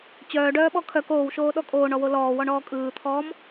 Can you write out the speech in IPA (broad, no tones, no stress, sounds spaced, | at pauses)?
t͡ɕ œː ɖ œː ɓ ɔ kʰ œ k oː w ʃ oː ɗ ɔ kʼ oː ɳ ɔ w o l ɔː w ɔ ɳ ɔː kʼ ɯː t̪ʰ ɔː m